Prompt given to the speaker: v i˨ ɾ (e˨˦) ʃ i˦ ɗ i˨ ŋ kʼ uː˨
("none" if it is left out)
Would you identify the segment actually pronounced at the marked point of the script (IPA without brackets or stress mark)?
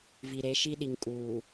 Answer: e˨˦